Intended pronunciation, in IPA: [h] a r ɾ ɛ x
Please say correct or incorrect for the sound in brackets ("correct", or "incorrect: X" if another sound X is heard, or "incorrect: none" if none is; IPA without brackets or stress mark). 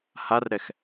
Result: correct